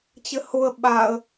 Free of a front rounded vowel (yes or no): yes